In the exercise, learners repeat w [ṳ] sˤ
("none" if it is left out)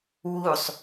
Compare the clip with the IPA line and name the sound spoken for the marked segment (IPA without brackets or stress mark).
u